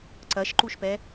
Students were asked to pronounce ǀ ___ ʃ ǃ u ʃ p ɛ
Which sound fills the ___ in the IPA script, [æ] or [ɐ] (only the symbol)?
ɐ